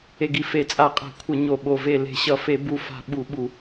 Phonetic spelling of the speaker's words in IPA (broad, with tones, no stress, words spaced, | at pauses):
e˧˩ɡi˧˩fe˧˩˧ t͡sʼa˧˩˧qʼa̤˧˩˧kʷʰʌ˧˩˧ ɲo˧˩ɓo˧˩ ve˧˩ le̤˧˩ɕʌ˧˩˧fe˧˩˧ bu˧˩fa̤˧˩ ɓu˧˩˧ɓu˧˩˧